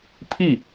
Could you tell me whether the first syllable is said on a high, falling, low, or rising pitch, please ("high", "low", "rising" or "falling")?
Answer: falling